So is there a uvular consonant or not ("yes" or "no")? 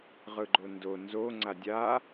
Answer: yes